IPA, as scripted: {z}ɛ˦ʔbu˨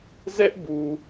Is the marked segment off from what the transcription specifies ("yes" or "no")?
no